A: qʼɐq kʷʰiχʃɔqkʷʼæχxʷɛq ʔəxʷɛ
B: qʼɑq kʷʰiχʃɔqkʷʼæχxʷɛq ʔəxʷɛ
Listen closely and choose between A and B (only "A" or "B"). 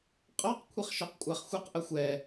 B